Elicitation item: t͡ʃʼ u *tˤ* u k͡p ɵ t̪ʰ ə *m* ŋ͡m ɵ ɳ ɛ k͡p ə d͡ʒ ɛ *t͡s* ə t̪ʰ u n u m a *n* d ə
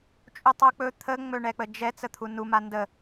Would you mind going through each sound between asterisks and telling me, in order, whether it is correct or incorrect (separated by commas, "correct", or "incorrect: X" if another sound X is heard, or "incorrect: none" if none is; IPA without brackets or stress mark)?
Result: correct, incorrect: none, correct, correct